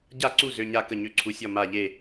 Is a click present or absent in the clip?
present